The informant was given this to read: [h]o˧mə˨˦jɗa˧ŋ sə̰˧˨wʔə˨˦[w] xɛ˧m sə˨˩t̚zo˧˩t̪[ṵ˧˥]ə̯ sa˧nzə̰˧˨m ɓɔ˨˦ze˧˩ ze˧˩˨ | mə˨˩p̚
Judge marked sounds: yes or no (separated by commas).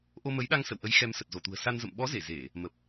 no, no, no